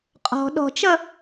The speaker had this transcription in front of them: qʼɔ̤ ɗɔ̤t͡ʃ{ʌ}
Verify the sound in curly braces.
correct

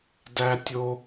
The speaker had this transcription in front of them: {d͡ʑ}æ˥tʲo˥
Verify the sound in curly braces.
incorrect: d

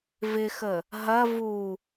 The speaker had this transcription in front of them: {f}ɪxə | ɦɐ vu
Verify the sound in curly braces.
incorrect: v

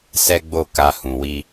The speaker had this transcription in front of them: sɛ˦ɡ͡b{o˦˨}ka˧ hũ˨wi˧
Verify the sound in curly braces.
correct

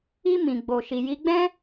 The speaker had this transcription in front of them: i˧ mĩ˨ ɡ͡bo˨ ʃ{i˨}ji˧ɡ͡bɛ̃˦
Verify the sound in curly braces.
correct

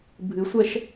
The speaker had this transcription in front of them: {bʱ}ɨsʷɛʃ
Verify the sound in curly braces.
correct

